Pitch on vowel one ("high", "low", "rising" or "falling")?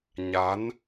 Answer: rising